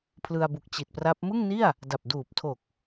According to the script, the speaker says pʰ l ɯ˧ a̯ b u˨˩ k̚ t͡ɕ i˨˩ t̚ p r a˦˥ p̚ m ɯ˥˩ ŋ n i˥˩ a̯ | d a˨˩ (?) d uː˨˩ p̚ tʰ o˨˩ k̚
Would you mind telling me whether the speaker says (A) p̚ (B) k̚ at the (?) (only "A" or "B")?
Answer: A